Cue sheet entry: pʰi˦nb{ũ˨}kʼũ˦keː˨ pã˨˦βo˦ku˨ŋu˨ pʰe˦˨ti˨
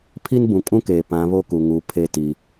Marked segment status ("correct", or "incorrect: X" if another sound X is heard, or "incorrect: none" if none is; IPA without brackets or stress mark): correct